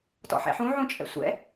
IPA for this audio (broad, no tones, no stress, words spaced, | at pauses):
tɔ̰ħɛ̰ħũ ʕũt͡ʃʼɛ̰sʷɛ̰